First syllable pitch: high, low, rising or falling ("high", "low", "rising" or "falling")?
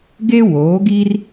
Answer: high